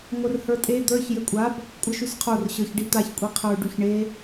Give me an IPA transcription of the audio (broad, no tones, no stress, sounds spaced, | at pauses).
ŋʷ ɘ r h ə˞ tʼ e d̪ ə˞ ç j ɘ kʷʼ a b | kʷʼ ɘ ʃ y s qʰ o r ɕ ə˞ ç ɖ i t̪ a ç kʷʼ i qʰ ə˞ ɖ y ç ɳ e